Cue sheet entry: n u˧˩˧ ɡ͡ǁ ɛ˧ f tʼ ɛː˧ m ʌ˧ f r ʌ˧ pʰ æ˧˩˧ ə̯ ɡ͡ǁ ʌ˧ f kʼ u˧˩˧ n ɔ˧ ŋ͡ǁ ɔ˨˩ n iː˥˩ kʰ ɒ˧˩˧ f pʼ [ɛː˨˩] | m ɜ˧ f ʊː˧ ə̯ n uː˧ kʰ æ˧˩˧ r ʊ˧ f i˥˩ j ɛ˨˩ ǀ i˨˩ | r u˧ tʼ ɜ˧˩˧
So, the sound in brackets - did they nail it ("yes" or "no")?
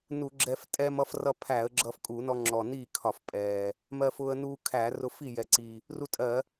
yes